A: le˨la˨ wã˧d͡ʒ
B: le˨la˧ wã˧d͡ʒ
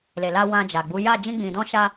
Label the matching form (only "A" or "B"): B